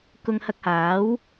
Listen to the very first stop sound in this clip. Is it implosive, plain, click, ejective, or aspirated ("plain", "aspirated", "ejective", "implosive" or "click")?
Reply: plain